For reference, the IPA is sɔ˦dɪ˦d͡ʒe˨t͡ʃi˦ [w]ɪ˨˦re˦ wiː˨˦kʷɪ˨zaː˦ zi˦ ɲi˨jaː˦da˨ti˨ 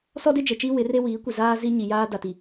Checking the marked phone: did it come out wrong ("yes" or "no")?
no